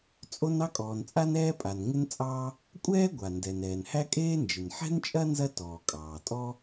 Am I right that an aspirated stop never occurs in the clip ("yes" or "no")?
yes